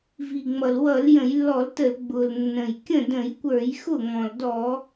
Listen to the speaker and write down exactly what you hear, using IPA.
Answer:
v i˩ ŋ͡m ʌ˩ l w ʌ˧˩˧ l j ə̃˧˩˧ j lː ɔ˧˩˧ l t ə˧˩˧ l ɡ͡b ʊ˩ l nː ə̃˩ j kʲ ə̃˥˩ d ə̃˧˩˧ j kʷ ə˞˧˩˧ j x ʊ˥˩ ŋ ɔ̃˩ l d ɔ˧˩˧

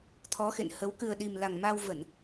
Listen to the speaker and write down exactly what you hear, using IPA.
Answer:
t̪ʰ ɔ˨˦ x ḛ˧˨ n h ə˨˦ w k ɨ˨˩ ə̯ ɗ i˨˩ m l a˨˩ ŋ m a˧ w v ə˧˩˨ n

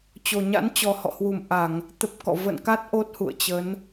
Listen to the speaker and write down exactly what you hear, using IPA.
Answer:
t͡ɕ o˨˩ ɲ a̰˧˥ n t͡ɕ ɔ˨˩ h ɔ̰˧˨ h w u˧˩ m ʔ a˧˩˨ ŋ | t̪ ə˦˥ p̚ k ɔ̰˧˨ v ə̰˧˨ n k a˦˥ t̚ ʔ o˦˥ t̚ h ṵ˧˨ ə̯ t͡ɕ ə˨˦ n

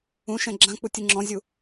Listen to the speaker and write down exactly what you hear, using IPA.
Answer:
ũ ʃ ɛ̃ ɡ͡ǁ ã k͡p u tʲ ɯ ŋ͡ǁ ɔ̃ zʲ u

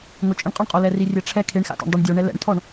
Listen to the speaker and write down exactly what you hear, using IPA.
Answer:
ŋ ʊ t͡ʃʼ ɪ ɳ qʼ ɔ ɳ qʼ o l ɛ r i rʲ ɛ ʈ͡ʂʰ ɛ kʰ e ɳ x a̰ t ḛ ɳ dˤ u ɳ dʲ o ɳ ɛ l ɛ̰ ɳ tʰ ɔ ɳ

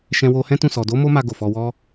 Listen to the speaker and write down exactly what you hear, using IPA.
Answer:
ʃ ɛ̃˧ w o˧ h ɛ̃˦ t ũ˦˨ s ɔ˨ d o˨˦ m o˦ m a˧ ɡ o˨ f ɔ˧ w ɔ˦

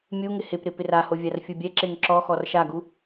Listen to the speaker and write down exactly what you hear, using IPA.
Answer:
mʲ u ŋ ɪ h ɪ p ɾ ɪ p ɪ r a h o vʲ a r fʲ u bʲ ɛ ǁ e ŋ ǁ ɔ x ɔ r ʃ a ɡ u

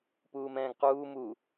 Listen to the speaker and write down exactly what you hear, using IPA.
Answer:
p uː m ɛ̃ː ɡ q uː m u

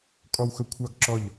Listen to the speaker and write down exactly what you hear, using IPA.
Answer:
kʼ ɔ˦ w x ɵ˦ kʷʰ ɑ˦ ɡ ǁ ɔ˦˨ ʎ

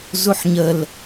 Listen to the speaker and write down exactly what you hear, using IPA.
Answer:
z u ħ ɲ ə l

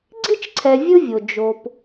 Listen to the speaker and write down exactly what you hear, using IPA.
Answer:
ɡ͡ǀ i˥ t͡ʃ ǀʰ ɛ˨ vʲ ɯ˦ vʲ o˩ d͡ʒ o˨ p

